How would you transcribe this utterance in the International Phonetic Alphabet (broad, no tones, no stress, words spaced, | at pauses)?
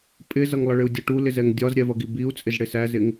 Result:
pʼɪzʌŋlˠʌɭɪu̯ dʲʌʈulɪzɛŋ dʲɒzɾʲɛvʌɡi biu̯t͡sʼɪz ɽɪsæzɪŋ